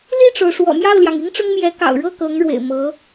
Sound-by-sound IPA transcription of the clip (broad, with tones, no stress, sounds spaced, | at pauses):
l i˥˩ ʈ͡ʂ o˩ ʊ̯ ʂ w ɔ̰˨˩ m j ɑ˥˩ ʊ̯ l j ɑ˩ ŋ i˥ ŋ ʈ͡ʂ ʊ˥ ŋ m j ɛ˧˥ k ɑ̰˨˩ ʊ̯ ɻ ɤ˥˩ k ɤ˧˥ ŋ ɻ w ḛ˨˩ ɪ̯ m ɤ˧˥